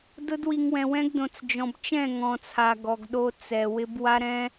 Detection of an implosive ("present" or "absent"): present